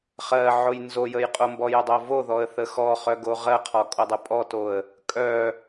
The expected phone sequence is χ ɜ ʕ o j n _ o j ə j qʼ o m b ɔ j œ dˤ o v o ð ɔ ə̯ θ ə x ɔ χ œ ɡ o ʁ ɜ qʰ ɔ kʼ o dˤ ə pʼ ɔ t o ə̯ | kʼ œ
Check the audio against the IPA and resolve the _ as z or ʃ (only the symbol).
z